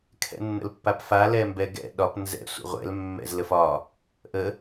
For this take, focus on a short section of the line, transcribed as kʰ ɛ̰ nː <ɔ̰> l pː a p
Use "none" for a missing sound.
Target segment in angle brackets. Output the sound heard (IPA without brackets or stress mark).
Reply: ə̰